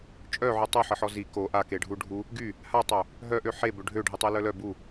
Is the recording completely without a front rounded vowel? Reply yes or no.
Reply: no